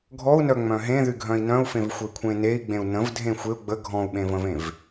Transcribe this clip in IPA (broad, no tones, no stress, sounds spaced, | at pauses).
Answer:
ɡʱ ɔ u̯ n œ ŋ͡m œ̃ ɦ ẽ ð y ɡʱ œ̃ i̯ n œ̃ u̯ f ẽ v xʷ ə i̯ kʷʰ ẽ n e i̯ ɡ͡b ẽ u̯ n ə̃ v dʱ ẽ xʷ e u̯ ɡ͡b ə ɡʱ ɔ̃ u̯ ɓ ẽ v ə̃ v ẽ v